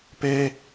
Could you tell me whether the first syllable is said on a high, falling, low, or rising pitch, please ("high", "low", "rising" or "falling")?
high